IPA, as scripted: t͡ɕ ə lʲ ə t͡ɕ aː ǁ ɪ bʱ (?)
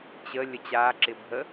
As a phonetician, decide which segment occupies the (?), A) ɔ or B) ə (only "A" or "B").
B